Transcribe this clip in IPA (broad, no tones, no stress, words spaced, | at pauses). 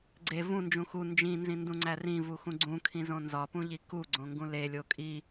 ɡ͡ǀe vũnd͡ʒũ xu nd͡ʒĩnzĩndũŋ͡ǀæ rĩvuxũ ɡ͡ǀũkʰĩzõ nzɒpũʎi kuɡ͡ǀõŋɡũ lelʲo kʼi